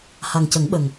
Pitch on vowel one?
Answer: low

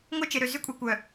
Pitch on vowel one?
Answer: high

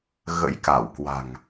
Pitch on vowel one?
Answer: rising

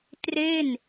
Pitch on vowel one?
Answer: falling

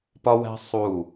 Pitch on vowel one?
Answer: high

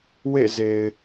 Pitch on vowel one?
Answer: falling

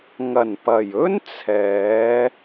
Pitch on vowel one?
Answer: low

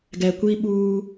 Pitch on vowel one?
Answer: low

